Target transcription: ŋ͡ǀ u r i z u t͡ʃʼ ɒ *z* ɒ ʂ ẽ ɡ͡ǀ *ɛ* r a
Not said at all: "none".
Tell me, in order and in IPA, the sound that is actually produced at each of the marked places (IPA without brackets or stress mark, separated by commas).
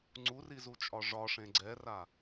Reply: ʐ, ɛ